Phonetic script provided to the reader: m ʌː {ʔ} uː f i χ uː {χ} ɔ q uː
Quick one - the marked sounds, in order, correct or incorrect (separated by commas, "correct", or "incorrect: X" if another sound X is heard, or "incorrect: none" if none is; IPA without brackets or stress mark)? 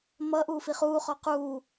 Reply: correct, correct